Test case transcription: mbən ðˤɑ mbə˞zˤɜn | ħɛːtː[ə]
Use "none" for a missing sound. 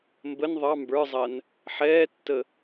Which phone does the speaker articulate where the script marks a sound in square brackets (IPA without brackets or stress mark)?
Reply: ə